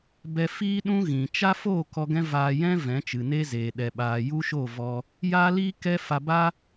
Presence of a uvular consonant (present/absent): absent